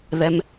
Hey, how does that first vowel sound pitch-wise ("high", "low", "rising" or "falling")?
low